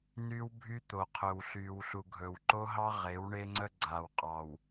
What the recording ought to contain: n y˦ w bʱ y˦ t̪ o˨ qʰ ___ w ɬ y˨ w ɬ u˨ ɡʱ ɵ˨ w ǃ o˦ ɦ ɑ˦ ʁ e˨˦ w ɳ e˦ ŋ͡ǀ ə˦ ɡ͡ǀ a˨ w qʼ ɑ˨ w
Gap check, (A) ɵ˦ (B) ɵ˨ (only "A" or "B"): B